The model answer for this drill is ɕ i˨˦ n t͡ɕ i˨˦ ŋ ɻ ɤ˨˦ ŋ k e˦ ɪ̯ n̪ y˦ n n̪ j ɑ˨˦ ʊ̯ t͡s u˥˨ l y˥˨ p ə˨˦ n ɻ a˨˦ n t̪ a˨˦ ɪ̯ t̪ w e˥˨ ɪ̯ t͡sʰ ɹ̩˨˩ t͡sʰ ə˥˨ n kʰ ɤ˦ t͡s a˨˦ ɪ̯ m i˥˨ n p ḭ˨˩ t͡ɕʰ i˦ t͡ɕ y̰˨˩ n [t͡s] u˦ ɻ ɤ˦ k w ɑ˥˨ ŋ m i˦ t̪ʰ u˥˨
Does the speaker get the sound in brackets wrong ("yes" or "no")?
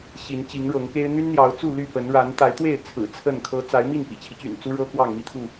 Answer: no